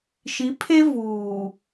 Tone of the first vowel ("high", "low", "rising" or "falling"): rising